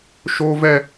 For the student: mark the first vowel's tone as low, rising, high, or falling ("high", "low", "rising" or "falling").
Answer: high